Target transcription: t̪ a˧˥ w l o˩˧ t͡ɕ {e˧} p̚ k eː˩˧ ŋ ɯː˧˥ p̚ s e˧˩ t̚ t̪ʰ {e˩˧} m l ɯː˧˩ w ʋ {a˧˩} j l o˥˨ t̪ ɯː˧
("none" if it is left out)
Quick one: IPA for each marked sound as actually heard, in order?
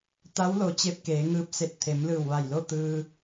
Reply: e˧, e˩˧, a˧˩

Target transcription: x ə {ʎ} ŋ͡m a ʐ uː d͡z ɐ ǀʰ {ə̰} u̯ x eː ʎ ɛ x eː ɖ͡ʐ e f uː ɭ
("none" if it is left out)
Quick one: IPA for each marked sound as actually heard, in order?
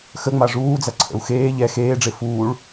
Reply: none, ə̰

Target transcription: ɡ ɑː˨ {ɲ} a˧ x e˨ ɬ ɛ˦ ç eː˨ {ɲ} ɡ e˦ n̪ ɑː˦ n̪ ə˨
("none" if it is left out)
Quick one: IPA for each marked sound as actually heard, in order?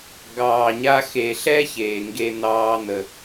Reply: ɲ, ŋ

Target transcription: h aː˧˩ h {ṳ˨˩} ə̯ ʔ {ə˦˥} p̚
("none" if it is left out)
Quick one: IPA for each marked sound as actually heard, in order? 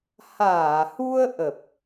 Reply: u˧, ə˨˩

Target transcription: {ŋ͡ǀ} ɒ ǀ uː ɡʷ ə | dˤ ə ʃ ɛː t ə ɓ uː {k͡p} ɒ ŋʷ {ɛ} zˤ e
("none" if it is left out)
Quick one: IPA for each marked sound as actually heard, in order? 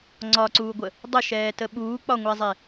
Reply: ŋ͡ǀ, k͡p, ɛ

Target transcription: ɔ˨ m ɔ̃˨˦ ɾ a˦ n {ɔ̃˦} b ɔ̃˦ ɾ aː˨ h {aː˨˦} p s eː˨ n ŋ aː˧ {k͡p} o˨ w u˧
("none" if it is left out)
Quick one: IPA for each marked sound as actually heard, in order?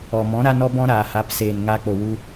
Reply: ɔ˦, a˨˦, k͡p

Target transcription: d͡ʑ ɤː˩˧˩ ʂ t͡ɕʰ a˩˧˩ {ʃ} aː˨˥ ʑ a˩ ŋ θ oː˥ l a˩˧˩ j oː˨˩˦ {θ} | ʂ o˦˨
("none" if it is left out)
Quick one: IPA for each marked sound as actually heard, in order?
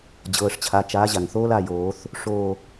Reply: t͡ʃ, θ

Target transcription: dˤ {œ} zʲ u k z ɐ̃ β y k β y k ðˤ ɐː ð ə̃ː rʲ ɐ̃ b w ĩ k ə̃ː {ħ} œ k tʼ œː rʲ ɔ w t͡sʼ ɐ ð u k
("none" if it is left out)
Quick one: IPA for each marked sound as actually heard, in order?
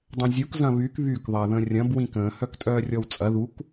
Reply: œ̃, h

